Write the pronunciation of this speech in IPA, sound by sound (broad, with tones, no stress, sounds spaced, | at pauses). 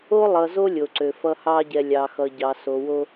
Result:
o˦ lˠ ʌ˨ z o˦ lʲ o˨ ǀ ø˨ f ʌ˦ h ɑ˦ ɟ ɛ˨ lʲ ɑ˨ x ʌ˨ ɟ ɑ˨ s o˨ w o˦